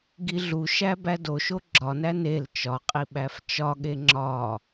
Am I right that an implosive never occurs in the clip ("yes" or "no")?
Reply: no